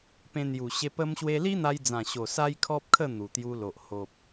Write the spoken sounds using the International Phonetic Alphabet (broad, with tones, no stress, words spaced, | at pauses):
pẽ˧n̪ju˨˩ɕe˧ pə˧mɕwe˧li˦ n̪a˧jd͡zã˨˩ɕo˨˩ sa˦jkʰɔ˦p̚kʰə˥˧ n̪u˨˩t̪ju˧lo˨ʔ ho˨p̚